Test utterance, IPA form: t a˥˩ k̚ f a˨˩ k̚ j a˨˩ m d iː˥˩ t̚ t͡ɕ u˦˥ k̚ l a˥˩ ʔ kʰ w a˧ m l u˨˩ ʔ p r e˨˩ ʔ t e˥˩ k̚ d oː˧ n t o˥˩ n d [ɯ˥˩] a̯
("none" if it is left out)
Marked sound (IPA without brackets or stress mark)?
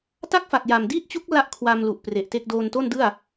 ɯ˥˩